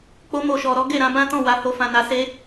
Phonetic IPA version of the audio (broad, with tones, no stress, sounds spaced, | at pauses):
k͡p o˧ m o˨ ʃ ɔ˨ ɾ ɔ˨˦ ɡ e˦˨ ɾ ã˨˦ b ã˦ t ɔ̃˦˨ w a˧ h o˧ f ã˨ n a˧ s e˧